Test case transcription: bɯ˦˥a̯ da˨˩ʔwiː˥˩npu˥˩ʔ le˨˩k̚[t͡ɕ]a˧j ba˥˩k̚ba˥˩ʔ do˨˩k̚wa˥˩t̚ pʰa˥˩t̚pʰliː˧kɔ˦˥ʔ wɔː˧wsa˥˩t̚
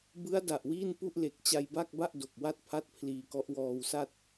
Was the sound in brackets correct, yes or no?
yes